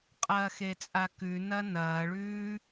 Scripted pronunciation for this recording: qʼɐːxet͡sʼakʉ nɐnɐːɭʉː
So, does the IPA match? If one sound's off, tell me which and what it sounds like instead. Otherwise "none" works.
none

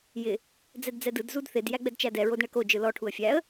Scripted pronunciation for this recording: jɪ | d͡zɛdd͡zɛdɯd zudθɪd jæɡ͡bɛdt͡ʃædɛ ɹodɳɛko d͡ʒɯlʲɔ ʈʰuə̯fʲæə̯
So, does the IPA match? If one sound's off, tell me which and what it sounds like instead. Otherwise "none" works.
lʲ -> l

